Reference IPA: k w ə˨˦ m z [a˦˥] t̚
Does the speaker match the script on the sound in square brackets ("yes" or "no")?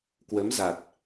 no